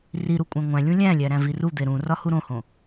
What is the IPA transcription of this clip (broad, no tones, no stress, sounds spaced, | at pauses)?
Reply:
r i ɾ u kʷʼ æ̃ ŋʷ æ̃ lʲ ũ lʲ æ̃ lʲ æ ɾ æ̃ v i r u d̪ e ɾ ũ r ɒ h u ɾ õ h õ